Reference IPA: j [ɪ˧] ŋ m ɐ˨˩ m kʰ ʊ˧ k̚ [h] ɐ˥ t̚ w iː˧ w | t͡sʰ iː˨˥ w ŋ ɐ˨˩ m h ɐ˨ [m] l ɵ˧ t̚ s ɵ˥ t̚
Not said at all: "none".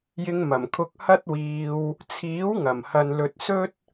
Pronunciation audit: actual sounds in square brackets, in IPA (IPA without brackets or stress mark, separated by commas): ɪ˧, h, n